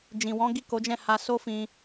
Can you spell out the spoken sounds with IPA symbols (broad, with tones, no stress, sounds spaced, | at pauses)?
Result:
d͡ʒ ĩ˨ w ɔ̃˨˦ ɡ i˦˨ k o˨˦ d͡ʒ ɛ̃˦˨ h a˧ s o˦ f ĩ˧